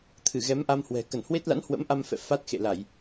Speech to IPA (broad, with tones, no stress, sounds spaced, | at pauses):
t̪ʰ ɨ˧˩ ɣ ɛ˨˦ m ʔ a˧ m h w ɛ̤˨˩ k ə˧˩ n h w e˦˥ t̚ l a̰˧˥ n h w ə̰˧˥ m ʔ a˧ m f ɛ̰˧˨ f a˦˥ t̚ x ḛ˧˨ l a˧˩˨ j